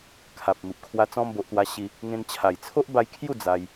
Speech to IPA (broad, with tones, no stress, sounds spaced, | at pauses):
kʰ a˨ p̚ m i˨ p̚ kʰ w a˧ t͡s ɔ̃˧ m b o˨ ʔ t̪ w a˧ ɕ i˧ | ŋ ẽ˧ n t͡ɕʰ a˨˩ j t͡sʰ o˦ ʔ b a˧ j kʰ j u˥˧ d͡z a˧ j